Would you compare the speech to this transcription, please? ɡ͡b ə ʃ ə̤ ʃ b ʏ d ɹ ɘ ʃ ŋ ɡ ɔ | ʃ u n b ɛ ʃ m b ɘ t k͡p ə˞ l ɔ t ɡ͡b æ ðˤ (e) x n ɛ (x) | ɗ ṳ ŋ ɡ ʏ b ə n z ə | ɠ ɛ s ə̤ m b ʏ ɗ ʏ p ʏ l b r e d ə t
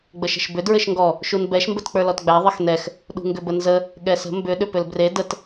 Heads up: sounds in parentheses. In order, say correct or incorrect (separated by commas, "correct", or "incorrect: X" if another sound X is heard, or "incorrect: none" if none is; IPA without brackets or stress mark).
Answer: incorrect: ɘ, correct